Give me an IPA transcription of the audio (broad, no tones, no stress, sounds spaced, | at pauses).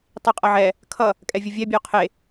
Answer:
tˤ i qʼ ɐ ʕ ɛ | kʰ ʌ | kʼ ɛ vʲ ʊ vʲ ɛ bʲ ə ʊ̯ qʰ e